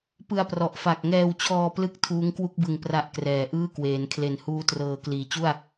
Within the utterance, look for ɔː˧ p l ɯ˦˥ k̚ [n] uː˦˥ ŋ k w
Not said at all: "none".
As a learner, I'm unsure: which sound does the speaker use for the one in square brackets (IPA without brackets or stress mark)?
tʰ